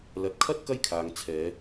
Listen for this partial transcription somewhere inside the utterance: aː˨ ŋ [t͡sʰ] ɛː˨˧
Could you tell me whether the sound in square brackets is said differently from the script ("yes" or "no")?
no